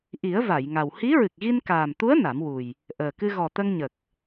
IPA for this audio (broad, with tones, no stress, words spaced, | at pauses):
ʔi˨˩˦ə̯ va˨˩˨jŋa˨˩w hi˧˥ɹɨ˨˩k̚ɣi˧n kaː˨˩mt̪u˧˥ə̯ na˨˩˦mwu˨˩j | ʔəː˨˩kɨ˧ ɣɔ˨˩ t̪ə˧ŋ ɲə˨˩k̚